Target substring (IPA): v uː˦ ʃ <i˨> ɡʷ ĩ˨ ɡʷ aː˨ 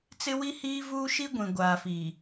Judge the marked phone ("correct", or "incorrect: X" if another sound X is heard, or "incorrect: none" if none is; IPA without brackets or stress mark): incorrect: i˦